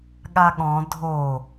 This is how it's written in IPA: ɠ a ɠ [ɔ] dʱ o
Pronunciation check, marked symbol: incorrect: ɔ̃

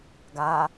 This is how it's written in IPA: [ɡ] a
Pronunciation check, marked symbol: correct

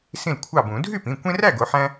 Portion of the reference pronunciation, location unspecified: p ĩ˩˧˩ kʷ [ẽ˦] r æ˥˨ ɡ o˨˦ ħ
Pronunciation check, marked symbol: correct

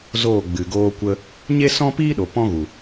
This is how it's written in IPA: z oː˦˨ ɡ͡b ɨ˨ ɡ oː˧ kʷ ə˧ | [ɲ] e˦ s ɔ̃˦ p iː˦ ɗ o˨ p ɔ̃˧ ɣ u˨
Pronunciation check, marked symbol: correct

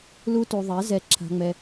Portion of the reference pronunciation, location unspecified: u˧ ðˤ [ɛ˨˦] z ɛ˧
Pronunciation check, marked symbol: correct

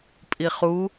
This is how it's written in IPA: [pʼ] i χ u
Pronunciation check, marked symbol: correct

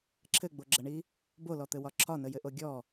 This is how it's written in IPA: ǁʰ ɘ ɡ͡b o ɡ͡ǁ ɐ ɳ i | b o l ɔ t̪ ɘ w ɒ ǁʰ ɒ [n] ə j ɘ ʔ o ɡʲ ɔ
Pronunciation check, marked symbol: correct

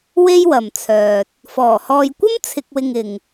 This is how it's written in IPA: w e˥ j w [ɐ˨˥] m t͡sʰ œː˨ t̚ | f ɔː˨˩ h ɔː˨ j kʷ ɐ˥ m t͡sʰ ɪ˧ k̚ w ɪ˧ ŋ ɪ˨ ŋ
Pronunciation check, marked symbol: incorrect: ɐ˨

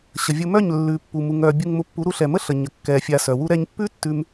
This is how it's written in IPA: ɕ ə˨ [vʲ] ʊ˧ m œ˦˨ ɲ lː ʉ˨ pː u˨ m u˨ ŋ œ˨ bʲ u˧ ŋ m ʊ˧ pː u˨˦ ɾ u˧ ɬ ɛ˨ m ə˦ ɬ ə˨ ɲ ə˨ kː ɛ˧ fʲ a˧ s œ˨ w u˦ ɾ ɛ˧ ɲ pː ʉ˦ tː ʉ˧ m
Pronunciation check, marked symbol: correct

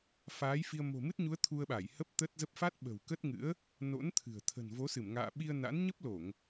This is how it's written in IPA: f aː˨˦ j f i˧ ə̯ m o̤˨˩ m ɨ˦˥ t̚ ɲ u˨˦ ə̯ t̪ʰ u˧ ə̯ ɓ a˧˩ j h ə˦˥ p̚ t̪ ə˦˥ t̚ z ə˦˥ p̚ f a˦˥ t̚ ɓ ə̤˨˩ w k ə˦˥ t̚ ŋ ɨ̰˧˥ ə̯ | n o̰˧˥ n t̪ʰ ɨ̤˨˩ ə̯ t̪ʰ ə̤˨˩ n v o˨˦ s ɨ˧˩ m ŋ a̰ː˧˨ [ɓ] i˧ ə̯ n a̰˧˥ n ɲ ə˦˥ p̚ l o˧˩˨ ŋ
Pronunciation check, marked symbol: correct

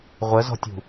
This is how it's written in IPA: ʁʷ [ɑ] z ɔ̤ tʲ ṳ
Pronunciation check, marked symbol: incorrect: ə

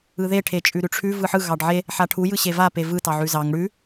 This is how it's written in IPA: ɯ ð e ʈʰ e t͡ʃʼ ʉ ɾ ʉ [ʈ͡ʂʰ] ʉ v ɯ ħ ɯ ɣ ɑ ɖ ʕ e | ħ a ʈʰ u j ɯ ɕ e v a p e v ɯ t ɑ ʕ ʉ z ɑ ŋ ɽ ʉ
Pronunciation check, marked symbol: correct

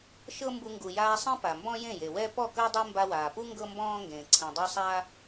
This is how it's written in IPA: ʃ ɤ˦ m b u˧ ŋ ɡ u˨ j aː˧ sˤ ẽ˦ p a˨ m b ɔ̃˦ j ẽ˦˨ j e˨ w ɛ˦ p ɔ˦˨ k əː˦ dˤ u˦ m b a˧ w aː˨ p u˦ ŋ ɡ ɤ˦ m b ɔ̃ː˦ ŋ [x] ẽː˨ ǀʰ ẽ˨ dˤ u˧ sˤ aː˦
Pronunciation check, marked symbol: incorrect: ɡ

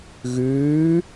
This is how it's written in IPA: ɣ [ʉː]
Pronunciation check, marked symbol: correct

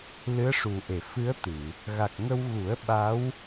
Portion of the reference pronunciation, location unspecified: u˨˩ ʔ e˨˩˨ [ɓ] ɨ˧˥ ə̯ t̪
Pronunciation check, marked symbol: incorrect: f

